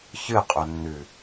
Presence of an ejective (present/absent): present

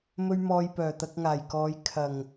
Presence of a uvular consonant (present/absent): absent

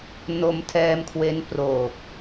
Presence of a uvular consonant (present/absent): absent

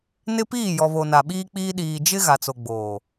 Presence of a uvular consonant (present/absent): absent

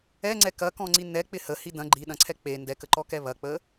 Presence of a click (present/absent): present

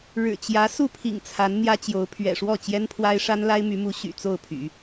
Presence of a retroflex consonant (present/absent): present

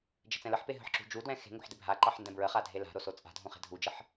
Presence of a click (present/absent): present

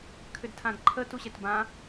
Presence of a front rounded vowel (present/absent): present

